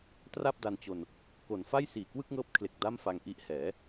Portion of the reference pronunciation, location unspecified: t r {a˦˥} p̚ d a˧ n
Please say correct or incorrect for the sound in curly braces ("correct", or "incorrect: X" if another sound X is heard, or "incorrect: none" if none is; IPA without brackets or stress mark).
incorrect: a˥˩